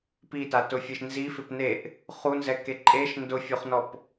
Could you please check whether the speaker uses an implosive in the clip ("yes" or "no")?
no